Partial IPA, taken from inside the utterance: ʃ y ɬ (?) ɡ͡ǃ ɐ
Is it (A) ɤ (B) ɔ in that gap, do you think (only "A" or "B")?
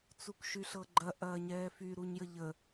A